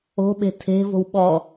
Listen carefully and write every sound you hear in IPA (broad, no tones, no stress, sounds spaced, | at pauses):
o̤ ɓ e̤ tʰ e̤ v o̤ w ɓ ɔ